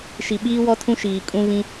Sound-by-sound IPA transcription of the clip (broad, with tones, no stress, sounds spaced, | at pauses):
ʃ i˨ ɓ iː˦ w ɔ˦ tʰ ũ˦ ʃ iː˨ kʼ ũ˦ β ĩ˦